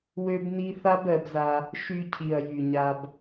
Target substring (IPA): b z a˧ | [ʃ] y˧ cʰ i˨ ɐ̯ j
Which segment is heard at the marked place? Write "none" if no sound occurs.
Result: ʃ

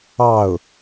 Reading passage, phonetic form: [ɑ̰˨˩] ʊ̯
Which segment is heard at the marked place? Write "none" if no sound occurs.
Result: ɑ˥˩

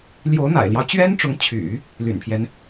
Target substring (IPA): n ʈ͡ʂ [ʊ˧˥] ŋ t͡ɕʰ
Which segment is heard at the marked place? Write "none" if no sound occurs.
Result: ʊ˧˥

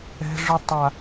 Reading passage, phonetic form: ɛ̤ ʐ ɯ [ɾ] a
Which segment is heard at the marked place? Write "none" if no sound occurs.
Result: tˤ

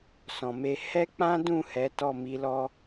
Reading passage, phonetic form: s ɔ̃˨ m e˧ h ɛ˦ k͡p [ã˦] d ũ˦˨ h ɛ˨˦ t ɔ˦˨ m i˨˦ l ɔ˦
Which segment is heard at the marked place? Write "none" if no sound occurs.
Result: ã˦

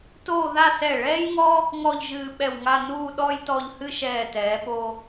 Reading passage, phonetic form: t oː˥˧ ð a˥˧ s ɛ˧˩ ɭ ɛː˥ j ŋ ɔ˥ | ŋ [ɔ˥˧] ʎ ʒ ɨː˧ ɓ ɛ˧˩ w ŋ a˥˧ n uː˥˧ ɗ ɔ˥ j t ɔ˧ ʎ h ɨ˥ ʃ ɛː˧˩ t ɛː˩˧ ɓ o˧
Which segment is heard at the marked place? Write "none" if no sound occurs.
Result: ɔ˥˧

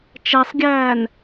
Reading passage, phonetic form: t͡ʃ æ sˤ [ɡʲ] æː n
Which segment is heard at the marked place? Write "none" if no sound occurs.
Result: ɡʲ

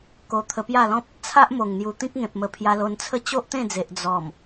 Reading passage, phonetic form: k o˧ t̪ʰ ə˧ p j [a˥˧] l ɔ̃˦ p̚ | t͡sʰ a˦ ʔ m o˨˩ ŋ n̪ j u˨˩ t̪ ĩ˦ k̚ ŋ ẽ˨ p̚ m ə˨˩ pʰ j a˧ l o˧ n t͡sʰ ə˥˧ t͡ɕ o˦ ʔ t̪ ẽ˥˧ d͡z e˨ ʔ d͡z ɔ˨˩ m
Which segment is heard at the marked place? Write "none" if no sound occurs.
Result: a˥˧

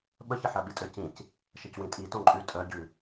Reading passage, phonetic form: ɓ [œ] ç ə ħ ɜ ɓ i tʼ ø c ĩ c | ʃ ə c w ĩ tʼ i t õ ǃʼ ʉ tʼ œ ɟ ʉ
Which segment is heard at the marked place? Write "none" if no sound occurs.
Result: ə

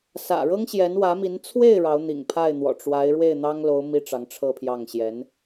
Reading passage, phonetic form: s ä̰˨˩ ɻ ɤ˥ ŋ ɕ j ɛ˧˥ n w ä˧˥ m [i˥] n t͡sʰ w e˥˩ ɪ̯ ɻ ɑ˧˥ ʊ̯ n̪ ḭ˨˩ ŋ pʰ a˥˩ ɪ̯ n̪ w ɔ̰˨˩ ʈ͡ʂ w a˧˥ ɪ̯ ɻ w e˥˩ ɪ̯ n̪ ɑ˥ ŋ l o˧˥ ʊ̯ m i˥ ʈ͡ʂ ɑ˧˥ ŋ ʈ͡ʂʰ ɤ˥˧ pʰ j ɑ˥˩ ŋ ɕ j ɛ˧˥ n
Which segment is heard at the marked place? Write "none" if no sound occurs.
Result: i˧˥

